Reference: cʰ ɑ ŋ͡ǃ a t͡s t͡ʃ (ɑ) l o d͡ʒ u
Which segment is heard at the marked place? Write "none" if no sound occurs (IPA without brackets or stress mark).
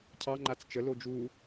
ə